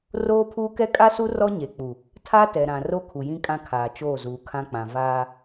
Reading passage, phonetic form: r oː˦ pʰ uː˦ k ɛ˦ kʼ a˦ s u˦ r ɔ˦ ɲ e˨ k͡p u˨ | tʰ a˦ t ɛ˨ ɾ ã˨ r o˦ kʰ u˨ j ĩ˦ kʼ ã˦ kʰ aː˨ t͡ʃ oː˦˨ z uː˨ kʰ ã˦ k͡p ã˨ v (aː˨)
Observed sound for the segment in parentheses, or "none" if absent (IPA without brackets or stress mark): aː˦